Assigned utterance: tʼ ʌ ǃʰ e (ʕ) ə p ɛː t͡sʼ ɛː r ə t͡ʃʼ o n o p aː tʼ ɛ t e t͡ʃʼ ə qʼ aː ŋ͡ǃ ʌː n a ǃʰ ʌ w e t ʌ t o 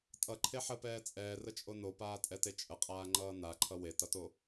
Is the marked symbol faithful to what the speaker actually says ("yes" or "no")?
no